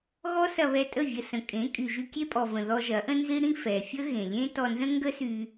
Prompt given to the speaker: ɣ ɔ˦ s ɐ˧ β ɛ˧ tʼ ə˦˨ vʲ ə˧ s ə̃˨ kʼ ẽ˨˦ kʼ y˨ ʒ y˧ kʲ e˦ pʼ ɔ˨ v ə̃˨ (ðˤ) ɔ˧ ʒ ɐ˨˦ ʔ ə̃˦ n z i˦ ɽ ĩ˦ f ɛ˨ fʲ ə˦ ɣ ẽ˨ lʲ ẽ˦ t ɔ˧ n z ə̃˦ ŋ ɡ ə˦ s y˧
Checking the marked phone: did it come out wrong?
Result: yes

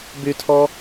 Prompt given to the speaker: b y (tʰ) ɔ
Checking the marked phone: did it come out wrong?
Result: no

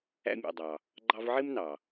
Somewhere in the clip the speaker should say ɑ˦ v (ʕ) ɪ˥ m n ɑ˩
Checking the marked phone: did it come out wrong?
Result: no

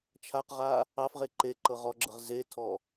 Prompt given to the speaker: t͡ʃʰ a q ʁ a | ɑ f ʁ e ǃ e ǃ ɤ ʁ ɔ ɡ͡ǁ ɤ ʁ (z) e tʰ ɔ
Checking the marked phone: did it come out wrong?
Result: no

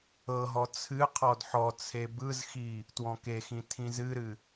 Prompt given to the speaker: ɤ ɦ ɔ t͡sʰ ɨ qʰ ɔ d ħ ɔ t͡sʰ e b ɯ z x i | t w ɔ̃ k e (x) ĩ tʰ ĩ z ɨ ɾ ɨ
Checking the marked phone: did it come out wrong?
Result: no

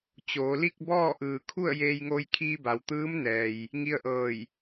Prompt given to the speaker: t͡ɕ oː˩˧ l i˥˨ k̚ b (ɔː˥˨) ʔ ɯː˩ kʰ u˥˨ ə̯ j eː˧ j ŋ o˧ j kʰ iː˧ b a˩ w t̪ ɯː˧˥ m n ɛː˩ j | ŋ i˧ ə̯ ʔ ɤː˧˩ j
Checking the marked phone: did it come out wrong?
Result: no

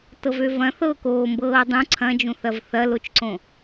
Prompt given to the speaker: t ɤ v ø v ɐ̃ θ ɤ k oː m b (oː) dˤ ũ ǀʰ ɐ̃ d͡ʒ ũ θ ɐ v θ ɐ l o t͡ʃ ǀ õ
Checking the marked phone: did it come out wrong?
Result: yes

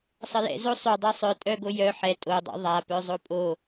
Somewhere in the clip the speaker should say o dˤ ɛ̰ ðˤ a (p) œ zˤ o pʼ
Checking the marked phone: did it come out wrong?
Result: no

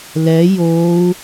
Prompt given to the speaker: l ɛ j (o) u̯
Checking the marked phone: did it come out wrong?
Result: no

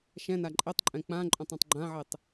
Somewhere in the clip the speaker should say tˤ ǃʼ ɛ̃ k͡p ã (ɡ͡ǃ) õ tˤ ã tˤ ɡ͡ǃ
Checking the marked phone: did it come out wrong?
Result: yes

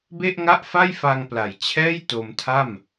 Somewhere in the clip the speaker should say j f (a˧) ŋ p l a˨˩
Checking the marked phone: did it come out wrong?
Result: no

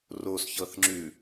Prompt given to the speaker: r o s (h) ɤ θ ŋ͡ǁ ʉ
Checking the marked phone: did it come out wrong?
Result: yes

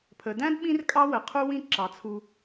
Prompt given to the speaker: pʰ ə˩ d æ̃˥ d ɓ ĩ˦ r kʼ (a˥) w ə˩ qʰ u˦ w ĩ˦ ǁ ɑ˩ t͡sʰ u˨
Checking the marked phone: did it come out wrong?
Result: yes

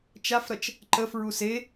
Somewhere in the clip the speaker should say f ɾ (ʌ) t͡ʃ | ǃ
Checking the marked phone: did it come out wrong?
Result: no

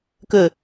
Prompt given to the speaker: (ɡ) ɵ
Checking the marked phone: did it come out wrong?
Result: yes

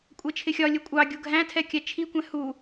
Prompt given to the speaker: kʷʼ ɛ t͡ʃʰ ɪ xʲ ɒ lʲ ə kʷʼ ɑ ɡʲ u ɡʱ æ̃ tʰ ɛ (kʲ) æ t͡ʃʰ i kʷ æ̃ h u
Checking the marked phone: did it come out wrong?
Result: no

